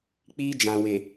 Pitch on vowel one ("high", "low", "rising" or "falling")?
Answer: high